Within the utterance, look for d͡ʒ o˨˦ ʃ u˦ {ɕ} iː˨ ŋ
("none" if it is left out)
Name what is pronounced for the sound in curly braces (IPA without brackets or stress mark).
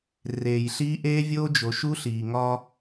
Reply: ɬ